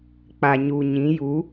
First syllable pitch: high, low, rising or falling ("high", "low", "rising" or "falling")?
low